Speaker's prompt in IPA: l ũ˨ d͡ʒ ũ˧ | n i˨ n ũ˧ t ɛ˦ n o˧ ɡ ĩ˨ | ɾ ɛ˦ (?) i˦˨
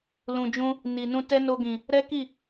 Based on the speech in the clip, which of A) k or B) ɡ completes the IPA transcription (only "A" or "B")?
A